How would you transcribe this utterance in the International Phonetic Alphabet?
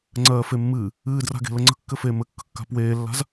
ŋ͡ǀ ɜː f e mː ɨː | ɨː d r a̤ ɡ e̤ l ə ŋ͡ǀ ə̤ kː ɘ f eː m ɘ kː ə̤ kː a̤ p w eː lː a̤ z

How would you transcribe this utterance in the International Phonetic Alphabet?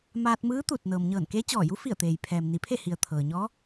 m aː˧ t̚ m ɯː˧˥ t̪ u˧˩ t̚ n ɤː˩ m ɲ ɤː˧˩ n k e˧˥ t͡ɕ ɔː˧˩ j u˧˥ f i˧˩ ə̯ t̪ eː˩ j pʰ ɛː˩ m n i˩˧ pʰ e˥˨ h i˩ ə̯ t̪ʰ ɤː˩ ɲ ɔː˧˥

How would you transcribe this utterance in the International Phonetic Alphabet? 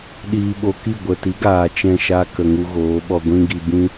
ɗ iː˧ ɓ o˧ k i˦˨ ɡʷ ə˨ t i˨˦ ɡ aː˨ t͡ʃ ɛ̃˦˨ ʃ a˦ k ə˨ ŋ u˧ ɣ oː˨˦ ɓ ɔ˧ ɡʷ ĩ˦ ɡ i˧ b ĩ˦

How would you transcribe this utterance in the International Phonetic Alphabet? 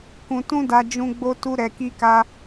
k ũ˧ t ũ˦ d a˧ d͡ʒ ũ˦ ɡ͡b o˦ t u˦ ɾ ɛ˧ k i˦ k a˦

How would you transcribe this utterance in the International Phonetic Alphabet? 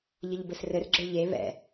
ʎ ə ʎ b ɘ s r ɘ r ɡ͡ǁ ə ɭ ʎ e β ɛ̰

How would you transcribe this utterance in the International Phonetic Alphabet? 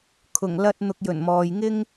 kʰ ʊ˨˩ ŋ l ɐ˧ t̚ n̪ ʊ˨ k̚ j ɵ˨˩ n m ɔː˨ j ŋ ɪ˥ ŋ

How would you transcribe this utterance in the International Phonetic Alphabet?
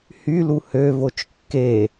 h y l u h ø v o t͡ʃ kː e

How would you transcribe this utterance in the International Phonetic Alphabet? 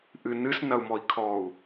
ʔ ɨ n ɨ s n ɐ u̯ m ɔ i̯ kʰ ɔ u̯

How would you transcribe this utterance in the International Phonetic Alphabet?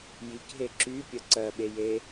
j i k ɦ e ǁ y pʲ ə ǀ ɜ ɓ e j e

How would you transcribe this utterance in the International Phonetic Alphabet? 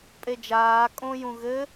pʼ e d͡ʒ aː kʼ õ j ũ ɣ ɘ

